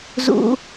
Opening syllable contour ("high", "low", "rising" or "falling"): high